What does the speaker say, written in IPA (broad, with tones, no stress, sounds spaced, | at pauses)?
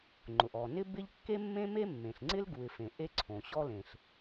ŋ͡ǃ ʊ˩ ʔ ɔ˩ n ɪ˥ b ɪ˥ ʎ kː e˥ mː ẽ˥ m e˥ mː ẽ˩ ɬ ŋ͡ǀ ɪ˥ l ɡ u˩ ɪ̯ f ẽ˩ ʔ e˥ ǀʰ õ˩ ɕ ɔ˥ l ẽ˩ ɬ